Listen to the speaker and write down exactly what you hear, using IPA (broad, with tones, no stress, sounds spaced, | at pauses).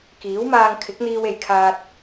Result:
k iː˨˥ w m aː˧ ŋ kʰ ɪ˨˥ k̚ n̪ iː˧ w e˨˩ j kʰ aː˨ t̚